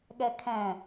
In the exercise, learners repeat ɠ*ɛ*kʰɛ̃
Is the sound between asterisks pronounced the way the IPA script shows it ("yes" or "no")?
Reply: yes